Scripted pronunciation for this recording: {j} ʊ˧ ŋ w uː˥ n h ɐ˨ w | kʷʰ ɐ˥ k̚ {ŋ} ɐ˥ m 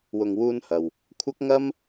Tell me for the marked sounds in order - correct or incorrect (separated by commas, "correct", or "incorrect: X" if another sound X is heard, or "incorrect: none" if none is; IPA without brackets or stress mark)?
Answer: incorrect: w, correct